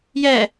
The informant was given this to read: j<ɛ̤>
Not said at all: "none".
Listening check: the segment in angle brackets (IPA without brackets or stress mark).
ɛ